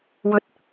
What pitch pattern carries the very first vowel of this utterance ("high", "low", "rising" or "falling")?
low